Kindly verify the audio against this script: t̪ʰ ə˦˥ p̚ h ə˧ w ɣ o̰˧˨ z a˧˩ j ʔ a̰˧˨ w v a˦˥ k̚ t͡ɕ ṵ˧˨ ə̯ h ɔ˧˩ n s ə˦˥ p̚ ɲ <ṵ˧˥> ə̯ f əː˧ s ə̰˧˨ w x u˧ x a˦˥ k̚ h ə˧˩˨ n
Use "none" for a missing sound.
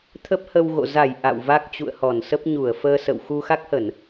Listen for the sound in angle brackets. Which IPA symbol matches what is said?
u˧˩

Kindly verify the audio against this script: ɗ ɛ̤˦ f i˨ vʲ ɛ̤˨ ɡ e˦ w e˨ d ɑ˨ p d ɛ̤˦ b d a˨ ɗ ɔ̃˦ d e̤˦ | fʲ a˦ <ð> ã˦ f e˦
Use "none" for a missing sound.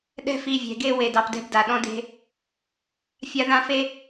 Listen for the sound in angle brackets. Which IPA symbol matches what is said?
ð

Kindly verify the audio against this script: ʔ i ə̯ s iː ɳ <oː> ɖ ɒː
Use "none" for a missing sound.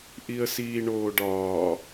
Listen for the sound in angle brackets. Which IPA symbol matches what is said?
oː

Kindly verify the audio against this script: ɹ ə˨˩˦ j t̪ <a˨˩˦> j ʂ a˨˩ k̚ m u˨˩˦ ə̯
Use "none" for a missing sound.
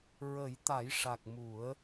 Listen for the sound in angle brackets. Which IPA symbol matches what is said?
a˨˩˦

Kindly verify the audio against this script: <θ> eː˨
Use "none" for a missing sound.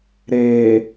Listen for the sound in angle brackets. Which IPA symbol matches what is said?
ɾ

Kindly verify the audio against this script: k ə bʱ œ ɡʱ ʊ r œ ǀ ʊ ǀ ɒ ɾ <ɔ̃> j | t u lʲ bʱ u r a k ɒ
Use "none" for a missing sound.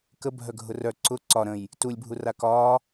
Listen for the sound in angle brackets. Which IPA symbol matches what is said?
ə̃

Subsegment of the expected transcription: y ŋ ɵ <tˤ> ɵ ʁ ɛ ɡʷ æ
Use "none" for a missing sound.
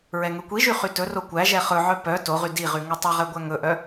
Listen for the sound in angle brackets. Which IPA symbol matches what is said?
tˤ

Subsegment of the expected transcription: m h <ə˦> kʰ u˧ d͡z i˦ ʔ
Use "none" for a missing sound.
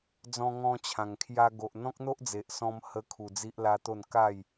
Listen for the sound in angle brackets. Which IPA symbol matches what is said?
ə˦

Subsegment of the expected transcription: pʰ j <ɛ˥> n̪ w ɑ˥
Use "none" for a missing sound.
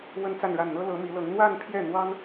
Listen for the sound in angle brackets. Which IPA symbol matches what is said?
ɛ˥˩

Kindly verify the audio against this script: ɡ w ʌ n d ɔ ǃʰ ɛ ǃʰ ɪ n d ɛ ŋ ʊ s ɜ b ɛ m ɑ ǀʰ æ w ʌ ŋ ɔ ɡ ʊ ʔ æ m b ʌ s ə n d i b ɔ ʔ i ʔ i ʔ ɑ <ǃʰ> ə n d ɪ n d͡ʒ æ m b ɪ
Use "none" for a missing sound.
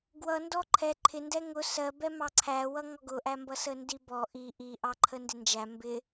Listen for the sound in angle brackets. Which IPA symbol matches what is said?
ǃʰ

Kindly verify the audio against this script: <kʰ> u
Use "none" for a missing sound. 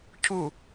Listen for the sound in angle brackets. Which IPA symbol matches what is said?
cʰ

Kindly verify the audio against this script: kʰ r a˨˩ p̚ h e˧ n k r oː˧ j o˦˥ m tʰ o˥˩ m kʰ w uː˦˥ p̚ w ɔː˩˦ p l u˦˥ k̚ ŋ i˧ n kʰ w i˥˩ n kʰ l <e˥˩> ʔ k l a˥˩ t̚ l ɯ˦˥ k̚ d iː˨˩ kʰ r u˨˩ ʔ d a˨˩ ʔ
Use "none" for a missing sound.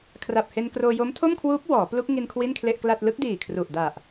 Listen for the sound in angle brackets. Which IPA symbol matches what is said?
e˥˩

